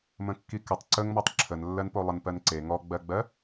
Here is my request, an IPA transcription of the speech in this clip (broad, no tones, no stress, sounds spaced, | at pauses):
m ə̃ kː i k ə tˤ ǀ ə ŋ m ɔ tˤ ǁʰ ə n lː ɜ n p o lˠ ə n p ɜ n ǀ e ŋ ɔ ɡ͡b ɜ ɡ͡b ɜ